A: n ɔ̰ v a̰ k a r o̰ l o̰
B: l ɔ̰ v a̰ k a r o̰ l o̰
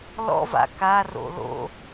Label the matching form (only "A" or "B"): B